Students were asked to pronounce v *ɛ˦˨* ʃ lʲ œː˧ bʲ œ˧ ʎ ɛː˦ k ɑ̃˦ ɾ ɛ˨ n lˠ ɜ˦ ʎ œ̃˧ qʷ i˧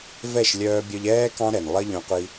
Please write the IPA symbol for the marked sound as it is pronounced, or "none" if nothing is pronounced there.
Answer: ɛ˦˨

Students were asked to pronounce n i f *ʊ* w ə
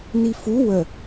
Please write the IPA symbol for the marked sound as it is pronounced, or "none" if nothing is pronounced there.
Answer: u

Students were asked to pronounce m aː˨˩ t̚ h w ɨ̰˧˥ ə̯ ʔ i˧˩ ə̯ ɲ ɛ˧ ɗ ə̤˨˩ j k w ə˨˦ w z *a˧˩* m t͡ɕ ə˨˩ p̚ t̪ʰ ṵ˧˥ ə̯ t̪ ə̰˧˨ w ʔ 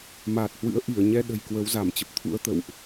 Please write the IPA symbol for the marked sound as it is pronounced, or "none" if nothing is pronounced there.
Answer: a˧˩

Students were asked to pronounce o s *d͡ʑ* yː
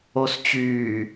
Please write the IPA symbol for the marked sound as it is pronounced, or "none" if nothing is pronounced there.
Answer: t͡ɕ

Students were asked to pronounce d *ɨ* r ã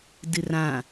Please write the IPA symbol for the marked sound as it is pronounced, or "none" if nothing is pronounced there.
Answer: ɨ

